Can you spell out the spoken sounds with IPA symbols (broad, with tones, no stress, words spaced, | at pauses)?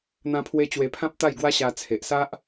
n̪ã˦pʰwe˦ t͡ɕwe˧pʰã˦p̚t̪a˥˧j ɡwa˦ɕa˧ t͡sʰe˨ʔ sa˦ʔ